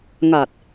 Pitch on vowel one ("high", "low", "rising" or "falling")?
low